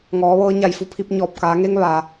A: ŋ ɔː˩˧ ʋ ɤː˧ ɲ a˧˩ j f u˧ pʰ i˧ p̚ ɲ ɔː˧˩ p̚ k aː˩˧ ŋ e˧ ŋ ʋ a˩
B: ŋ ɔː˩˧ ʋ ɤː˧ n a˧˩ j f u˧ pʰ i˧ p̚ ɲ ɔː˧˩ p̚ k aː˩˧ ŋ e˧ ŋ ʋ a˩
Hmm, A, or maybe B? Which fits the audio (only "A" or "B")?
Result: A